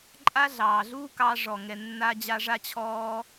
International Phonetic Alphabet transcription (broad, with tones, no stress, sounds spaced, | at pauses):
ǃʼ a˥ ɮ ɑː˩ ɮ uː˥ k ɑː˧ ʐ ɔ˩ ŋ ɛ˩ nː a˧ d͡ʑ a˧ ʐ a˧ t͡ɕʰ ɔː˧